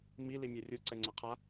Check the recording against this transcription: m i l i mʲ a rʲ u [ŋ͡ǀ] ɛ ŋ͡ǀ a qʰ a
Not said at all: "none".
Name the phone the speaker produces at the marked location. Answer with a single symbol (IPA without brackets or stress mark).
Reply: ǀ